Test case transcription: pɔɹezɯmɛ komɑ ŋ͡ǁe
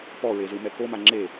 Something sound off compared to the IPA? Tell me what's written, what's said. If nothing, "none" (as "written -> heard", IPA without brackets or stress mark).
ɑ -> a